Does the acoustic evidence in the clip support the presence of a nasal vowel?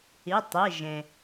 yes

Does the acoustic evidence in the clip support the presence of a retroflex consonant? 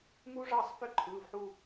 yes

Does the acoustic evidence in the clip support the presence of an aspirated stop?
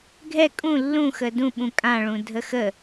no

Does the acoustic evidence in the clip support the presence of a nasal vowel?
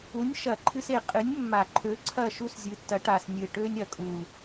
no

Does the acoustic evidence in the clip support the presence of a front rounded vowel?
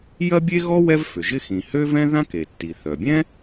yes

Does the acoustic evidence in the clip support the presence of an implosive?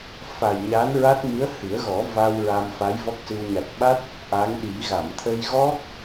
yes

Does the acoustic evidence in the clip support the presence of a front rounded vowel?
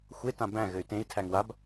yes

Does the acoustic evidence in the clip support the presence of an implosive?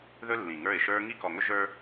no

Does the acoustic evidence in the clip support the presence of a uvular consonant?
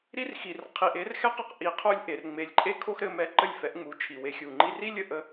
yes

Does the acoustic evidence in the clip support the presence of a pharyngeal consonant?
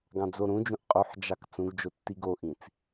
yes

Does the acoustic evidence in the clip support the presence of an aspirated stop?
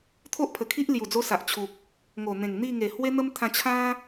yes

